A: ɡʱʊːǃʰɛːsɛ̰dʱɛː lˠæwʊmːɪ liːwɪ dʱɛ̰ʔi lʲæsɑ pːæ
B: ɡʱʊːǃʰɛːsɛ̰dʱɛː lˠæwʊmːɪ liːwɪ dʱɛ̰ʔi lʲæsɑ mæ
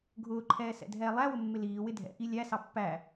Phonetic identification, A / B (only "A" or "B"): A